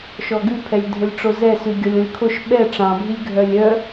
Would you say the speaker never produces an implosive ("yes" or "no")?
no